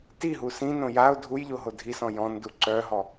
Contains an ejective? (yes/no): no